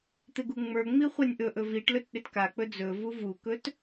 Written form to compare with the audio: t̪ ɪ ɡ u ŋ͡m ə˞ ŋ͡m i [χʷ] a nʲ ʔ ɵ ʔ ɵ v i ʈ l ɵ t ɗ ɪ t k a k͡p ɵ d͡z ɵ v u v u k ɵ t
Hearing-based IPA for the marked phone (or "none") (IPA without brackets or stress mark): χʷ